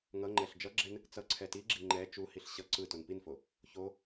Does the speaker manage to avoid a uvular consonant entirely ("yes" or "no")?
yes